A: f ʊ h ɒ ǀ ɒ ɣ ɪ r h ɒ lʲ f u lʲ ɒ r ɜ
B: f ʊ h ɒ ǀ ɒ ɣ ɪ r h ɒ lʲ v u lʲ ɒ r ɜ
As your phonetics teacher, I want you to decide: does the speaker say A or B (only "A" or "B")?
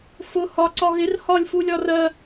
A